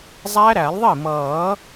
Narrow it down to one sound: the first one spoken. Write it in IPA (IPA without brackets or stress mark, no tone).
zˤ